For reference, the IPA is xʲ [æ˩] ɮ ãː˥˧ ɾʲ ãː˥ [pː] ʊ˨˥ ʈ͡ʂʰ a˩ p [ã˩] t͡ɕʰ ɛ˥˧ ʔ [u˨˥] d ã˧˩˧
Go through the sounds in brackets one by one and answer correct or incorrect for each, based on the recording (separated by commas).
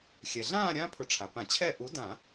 incorrect, incorrect, incorrect, correct